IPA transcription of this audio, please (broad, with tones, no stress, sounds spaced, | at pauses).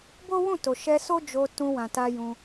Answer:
b o˦ w ũ˦˨ t o˨ ʃ ɛ˧ s o˦ d͡ʒ o˧ t ũ˧ w ã˨ t a˧ j ũ˧